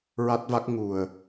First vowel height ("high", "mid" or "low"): low